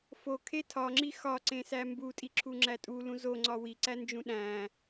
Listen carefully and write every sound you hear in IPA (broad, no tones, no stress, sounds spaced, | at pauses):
f o kʰ e tʰ ɒ ŋ͡ǁ i x ɒ ǀ ẽ s æ m b u tʼ i ǁʰ u ŋ͡ǁ æ tʼ u l ũ z o ŋ͡ǀ ɒ w i ǀ æ n d͡ʒ ũ ɗ æ̃